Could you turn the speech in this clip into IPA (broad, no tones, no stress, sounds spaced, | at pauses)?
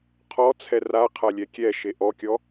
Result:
qʰ ɔ t͡sʰ ɛ r a qʰ a lʲ ɛ kʲ ɛ ʃ e ʔ ɔ kʲ ɔ